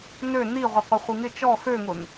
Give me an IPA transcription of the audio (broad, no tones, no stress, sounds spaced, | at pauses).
n ø n i ʁʷ ɪ qʷ ɪ χʷ i ŋ ɪ t͡ʃ ɔ x ø ŋ ʊ n